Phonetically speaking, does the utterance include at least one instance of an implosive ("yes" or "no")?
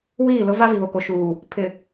no